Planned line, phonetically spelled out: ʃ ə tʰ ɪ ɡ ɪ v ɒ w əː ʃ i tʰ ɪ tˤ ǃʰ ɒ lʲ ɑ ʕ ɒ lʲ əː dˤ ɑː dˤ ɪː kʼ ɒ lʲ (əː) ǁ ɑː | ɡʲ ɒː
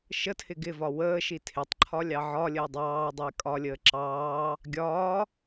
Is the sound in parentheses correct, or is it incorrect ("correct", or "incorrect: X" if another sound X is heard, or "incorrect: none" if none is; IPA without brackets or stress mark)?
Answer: correct